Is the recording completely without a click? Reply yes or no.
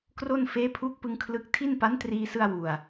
yes